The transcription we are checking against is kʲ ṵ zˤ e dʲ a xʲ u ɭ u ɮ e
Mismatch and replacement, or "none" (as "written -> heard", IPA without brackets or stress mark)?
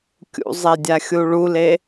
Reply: ɮ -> l